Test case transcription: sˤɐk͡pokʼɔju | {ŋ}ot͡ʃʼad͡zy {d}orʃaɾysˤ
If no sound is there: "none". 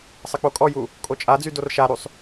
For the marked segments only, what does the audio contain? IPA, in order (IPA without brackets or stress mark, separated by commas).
kʼ, d